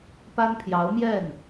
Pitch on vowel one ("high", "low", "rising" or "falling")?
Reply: high